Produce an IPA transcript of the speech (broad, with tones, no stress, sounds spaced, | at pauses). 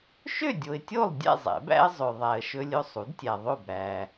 ʃ ø˥˨ dʲ o˨ ɪ̯ tʲ o˥˨ lˠ dʲ ɛ̰˥˨ zˤ ɛ̰˨˩˦ b æ̰˦ ə̯ zˤ ø˨ ðˤ æ˨ ə̯ ʃ ɵ˦ lʲ ɵ˦ sˤ u˩˥ d tʲ æ˨ ðˤ o˥˨ b ɾ æ˨